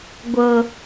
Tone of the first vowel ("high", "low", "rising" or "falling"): low